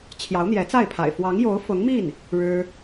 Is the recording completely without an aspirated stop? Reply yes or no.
no